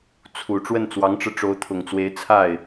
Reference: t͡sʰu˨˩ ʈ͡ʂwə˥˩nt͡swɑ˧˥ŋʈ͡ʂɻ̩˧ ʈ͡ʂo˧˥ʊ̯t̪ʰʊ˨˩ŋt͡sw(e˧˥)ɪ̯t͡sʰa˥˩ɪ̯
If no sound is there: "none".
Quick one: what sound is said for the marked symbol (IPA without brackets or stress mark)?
e˧˥